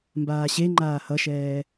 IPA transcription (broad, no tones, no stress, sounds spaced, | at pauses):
m b aː ɕ e ŋ͡ǃ aː h ʌ ʃ ɛː